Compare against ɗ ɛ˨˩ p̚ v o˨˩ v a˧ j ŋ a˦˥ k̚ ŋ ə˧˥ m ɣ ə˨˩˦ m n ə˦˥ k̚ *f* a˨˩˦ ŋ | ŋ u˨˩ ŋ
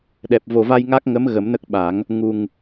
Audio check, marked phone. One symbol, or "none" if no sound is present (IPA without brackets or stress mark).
ɓ